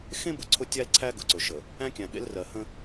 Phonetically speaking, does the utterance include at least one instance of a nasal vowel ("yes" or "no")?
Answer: yes